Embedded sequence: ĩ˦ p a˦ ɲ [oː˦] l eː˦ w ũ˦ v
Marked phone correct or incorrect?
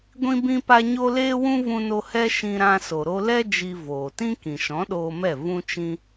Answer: incorrect